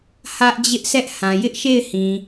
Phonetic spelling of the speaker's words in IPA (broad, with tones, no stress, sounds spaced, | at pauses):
h ä˦ ʔ d͡ʑ ɪ˦ ʔ s ɛ˦ ʔ h ã˨ j ɪ˦ ʔ ʃ e˦˨ ɪ̯ h ĩ˨